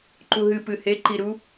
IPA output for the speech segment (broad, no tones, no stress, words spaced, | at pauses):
ǃuɦɨ pɨheǃiɾu